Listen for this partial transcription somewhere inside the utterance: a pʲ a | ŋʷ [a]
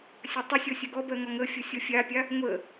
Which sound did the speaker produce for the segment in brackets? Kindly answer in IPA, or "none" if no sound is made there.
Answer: ə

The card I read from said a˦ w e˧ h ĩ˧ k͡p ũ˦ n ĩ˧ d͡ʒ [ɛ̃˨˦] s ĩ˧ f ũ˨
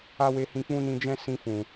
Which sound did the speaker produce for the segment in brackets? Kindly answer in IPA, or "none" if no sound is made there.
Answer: ɛ̃˦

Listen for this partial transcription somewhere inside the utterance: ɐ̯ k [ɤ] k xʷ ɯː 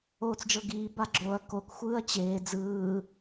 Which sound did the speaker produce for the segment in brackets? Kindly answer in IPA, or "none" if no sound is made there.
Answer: o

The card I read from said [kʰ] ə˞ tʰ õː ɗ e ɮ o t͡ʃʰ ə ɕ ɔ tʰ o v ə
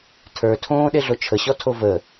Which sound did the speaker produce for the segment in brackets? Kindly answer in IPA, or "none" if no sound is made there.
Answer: tʰ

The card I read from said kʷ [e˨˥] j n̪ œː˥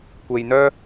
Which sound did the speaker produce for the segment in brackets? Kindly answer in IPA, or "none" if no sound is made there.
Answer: e˧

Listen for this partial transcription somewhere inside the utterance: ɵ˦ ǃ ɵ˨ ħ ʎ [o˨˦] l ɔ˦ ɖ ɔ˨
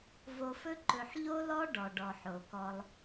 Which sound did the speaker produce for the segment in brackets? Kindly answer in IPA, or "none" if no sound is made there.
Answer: o˦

